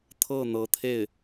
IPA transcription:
t̪ʰ ɤ˥˩ n̪ ɤ˧˥ t̪ʰ e˥˩ ɪ̯

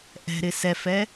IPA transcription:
ʔ ɛ̤ ɾ ɪ s ɛ f ɛ

